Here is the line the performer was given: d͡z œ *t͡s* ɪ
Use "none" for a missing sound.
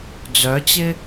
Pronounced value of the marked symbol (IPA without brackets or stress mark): t͡ɕ